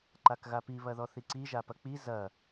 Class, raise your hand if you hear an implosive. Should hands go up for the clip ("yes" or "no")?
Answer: no